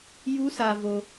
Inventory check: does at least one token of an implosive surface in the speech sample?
no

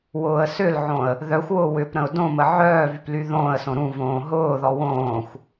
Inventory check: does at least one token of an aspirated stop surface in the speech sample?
no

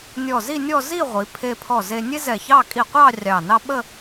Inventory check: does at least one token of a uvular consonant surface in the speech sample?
yes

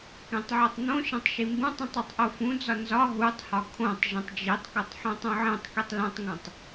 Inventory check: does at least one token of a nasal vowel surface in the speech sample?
yes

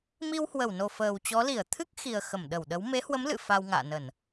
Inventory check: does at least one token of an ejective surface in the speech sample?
no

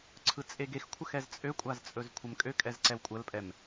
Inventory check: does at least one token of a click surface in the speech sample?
yes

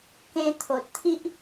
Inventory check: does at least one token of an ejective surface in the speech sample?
no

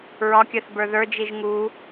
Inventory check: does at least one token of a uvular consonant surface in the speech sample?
no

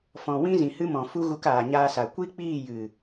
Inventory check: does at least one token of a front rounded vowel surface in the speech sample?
no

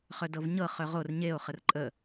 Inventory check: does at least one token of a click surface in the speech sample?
yes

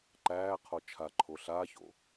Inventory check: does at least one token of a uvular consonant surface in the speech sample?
yes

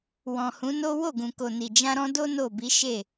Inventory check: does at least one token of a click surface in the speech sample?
no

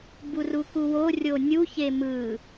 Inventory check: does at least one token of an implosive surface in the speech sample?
no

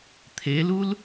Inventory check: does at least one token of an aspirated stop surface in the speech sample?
yes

